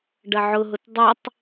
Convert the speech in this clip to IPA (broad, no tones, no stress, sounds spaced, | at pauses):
ɖ ɐ ʕ ʊ ɦ ʊ t dˤ ə tˤ